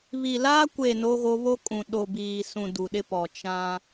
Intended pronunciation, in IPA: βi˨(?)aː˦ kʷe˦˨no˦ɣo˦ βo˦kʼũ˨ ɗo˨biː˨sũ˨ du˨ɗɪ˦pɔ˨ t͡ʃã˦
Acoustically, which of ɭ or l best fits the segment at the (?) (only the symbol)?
l